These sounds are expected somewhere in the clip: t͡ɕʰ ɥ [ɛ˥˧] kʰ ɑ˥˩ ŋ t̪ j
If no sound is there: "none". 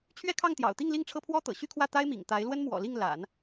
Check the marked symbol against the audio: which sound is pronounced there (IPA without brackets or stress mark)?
ɛ˥